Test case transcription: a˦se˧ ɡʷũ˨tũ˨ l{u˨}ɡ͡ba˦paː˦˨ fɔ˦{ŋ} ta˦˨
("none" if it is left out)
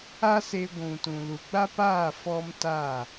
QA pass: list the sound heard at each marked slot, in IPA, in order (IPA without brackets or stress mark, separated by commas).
u˨, m